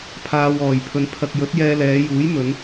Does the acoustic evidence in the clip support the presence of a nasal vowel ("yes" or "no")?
no